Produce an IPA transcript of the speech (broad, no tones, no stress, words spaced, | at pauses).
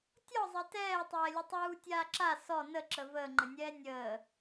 tʲɔzˤɛ tɛːtˤɛː lʲətˤuː tʲaːǁa sɔ nəǁə vəːŋ͡ǃənʲɛː nʲəː